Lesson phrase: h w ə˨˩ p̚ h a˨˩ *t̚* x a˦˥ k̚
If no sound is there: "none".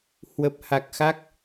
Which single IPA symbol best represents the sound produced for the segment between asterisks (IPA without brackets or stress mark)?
k̚